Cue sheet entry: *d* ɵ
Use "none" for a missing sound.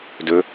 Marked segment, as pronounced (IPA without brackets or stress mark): d